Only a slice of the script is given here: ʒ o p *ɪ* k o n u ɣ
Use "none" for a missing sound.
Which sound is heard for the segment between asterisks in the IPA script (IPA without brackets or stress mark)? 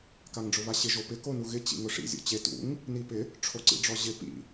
ɪ